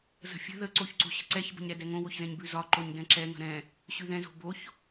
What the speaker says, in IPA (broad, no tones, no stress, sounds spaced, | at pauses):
z ə̤ fʲ ə̤ ð ə ǀ o ç ǀ o̤ ɕ ə̤ ǀ ɛ ç b ə̤ ɲ ɾ ɛ d ɛ ŋ õ w o ç z ɛ̃ ɲ b ʉ z ɒ ǃ o ɲ d ɛ̃ ǁ ɛ ŋ ə̤ ɾ ɛ̃ | ɕ ʉ ð ɛ̃ z o̤ b o ç